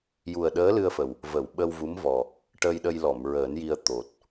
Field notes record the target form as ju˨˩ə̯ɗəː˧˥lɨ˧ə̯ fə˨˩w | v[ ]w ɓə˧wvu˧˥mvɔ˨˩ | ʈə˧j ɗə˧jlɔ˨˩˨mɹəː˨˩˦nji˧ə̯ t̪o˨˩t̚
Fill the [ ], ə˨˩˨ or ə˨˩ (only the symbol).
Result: ə˨˩˨